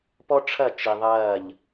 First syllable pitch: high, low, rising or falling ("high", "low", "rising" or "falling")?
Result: high